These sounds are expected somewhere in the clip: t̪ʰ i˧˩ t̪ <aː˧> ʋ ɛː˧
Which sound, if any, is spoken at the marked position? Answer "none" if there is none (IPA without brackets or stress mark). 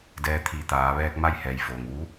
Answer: aː˩˧